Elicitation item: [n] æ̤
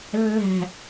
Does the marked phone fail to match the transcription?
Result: yes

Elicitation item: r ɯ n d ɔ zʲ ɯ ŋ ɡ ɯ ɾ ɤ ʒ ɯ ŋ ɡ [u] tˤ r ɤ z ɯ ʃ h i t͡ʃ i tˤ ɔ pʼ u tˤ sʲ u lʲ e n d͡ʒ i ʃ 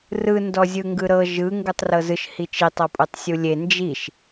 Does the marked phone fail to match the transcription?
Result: no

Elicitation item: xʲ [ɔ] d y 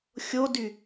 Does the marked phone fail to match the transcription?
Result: yes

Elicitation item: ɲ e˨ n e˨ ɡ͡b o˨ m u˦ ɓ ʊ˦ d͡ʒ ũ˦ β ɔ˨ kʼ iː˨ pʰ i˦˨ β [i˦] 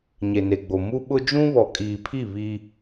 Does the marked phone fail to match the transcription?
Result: no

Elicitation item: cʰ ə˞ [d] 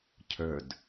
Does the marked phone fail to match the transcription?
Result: no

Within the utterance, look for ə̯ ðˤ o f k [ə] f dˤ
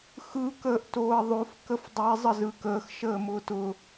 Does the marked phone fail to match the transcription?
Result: no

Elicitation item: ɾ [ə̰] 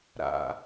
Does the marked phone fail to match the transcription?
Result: yes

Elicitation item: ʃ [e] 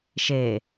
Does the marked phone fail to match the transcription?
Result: no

